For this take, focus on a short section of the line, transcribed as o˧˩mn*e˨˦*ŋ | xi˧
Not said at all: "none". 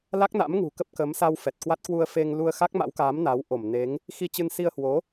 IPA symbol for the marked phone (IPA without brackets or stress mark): e˨˦